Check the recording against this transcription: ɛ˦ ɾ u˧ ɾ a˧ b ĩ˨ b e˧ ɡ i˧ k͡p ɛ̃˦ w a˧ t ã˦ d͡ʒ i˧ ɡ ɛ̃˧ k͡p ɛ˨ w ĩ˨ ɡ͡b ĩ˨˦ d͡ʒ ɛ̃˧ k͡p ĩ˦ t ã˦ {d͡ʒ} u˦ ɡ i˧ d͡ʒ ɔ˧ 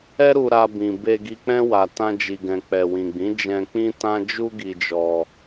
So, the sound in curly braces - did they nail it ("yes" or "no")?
yes